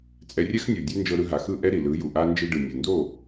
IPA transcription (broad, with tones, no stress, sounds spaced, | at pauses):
t͡sʼ ɛ˧ rʲ ɛ˥ x nʲ u˩ dʲ e˥ n d͡ʒ ɤ˧ ɾ ɯ˧ ɦ a˩ x ɯ˥˩ ʔ ɛ˥ ɾ i˩ l ɯ˩˥ j u˩ ʔ a˥ n d͡ʒ i˧ ɖ ɯ˩ nʲ u˩ n d o˥˩